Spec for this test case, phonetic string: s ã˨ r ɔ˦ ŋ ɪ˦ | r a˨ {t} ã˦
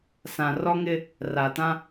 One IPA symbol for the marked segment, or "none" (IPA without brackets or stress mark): t